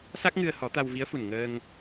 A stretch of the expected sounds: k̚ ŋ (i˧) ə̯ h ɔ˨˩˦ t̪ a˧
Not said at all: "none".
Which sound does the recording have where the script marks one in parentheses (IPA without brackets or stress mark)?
ɨ˧